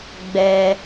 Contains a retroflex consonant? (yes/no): no